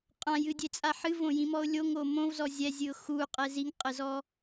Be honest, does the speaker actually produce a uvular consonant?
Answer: yes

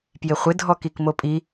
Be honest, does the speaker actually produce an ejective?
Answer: yes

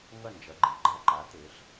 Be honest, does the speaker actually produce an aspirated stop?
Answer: no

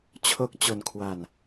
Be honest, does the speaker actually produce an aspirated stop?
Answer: yes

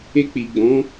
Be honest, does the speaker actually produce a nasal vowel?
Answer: yes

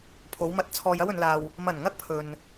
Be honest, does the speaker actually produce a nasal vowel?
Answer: no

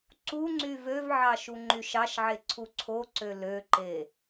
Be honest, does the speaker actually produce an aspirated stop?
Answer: yes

